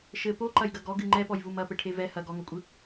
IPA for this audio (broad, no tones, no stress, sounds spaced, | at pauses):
ʃ ɘ p o ǃ ɐ j ɡ ɐ ɡ ɔ ɡ ɨ ŋ͡ǃ ɛ p ɔ j v u m ɐ p ɘ ʈʰ e v ɛ h ɐ ɡ ɔ ŋ o kʷʼ ɨ